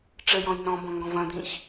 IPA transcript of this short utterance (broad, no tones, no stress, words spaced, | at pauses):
ʈ͡ʂəjɔ̃j nɔ̃bɔ̃ŋɡɔ̃v ɐ̃d̪ĩç